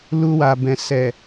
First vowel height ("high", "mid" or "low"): high